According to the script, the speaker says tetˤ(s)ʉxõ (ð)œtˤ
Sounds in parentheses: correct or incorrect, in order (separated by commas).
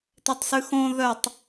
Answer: correct, correct